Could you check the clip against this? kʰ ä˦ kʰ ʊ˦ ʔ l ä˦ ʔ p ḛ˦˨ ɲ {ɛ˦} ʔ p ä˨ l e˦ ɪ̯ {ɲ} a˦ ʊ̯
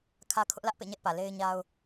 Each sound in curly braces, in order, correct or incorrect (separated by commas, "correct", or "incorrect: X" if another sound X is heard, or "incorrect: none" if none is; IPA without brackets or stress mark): correct, correct